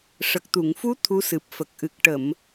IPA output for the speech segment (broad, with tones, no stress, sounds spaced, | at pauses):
ʂ ə˨˩ k̚ t̪ u˨˩˨ ŋ f u˧˥ t̪ʰ u˧˥ s ɨ˨˩ p̚ f ə˨˩ k̚ ʔ ɨ˨˩ k̚ ʈ ə˨˩˨ m